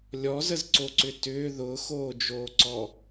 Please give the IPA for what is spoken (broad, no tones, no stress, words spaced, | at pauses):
lʲɔzəzǀoǀʏ tʏː ðʊːxoːd͡ʒoːǀɔ